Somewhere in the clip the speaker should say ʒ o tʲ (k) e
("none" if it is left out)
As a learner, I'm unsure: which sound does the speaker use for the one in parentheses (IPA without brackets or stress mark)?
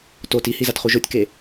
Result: k